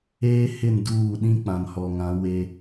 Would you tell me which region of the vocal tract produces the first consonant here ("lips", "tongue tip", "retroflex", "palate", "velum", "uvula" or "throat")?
throat